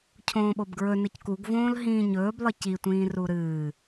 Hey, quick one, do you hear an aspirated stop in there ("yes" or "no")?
yes